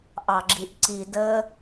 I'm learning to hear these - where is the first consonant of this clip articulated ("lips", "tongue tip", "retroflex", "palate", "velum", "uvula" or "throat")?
throat